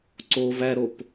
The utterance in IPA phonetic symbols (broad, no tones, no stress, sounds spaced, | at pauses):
ǀ o v æ ɾ o p